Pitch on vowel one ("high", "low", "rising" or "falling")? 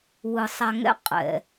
low